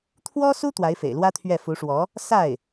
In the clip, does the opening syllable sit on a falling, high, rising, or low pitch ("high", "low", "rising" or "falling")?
high